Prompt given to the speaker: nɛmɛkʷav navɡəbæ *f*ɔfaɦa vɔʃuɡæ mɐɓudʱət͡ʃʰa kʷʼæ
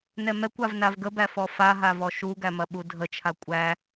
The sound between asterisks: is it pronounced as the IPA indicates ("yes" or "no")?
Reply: yes